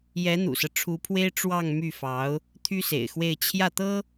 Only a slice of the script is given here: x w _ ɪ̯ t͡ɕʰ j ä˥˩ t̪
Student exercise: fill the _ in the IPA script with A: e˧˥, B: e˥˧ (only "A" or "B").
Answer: B